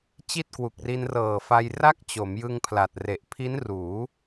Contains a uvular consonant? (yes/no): no